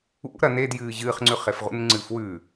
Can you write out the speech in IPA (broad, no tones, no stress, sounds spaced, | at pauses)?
ṵ ɾ ɐ n e d j ɨː ʑ ɨ χ ŋ͡ǀ ʉ χ e f ʁ ṵ n ŋ͡ǀ ɨː f w ʉ